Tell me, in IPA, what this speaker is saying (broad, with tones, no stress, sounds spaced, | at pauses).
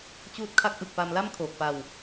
t͡ɕ uː˦˥ t̚ kʰ a˦˥ k̚ ʔ ɯ˨˩ k̚ p a˧ m l a˥˩ m kʰ oː˨˩ k̚ p a˧ w